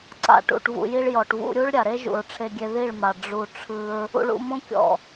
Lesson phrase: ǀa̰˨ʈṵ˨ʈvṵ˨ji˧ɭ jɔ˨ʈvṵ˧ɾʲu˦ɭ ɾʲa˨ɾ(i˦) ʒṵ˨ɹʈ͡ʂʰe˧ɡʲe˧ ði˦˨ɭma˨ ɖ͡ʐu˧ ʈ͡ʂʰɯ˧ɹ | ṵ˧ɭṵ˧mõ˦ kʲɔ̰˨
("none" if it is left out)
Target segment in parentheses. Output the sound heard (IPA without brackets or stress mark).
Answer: e˦